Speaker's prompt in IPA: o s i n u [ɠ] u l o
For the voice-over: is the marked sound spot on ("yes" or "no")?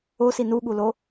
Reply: yes